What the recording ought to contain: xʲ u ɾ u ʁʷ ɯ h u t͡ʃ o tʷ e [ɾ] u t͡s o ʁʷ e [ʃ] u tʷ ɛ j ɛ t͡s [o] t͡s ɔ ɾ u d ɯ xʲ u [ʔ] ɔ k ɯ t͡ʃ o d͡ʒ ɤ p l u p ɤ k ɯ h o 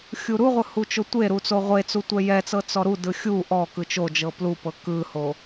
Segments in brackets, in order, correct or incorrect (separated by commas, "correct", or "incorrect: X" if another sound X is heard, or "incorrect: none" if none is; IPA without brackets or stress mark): correct, incorrect: t͡s, incorrect: ɤ, correct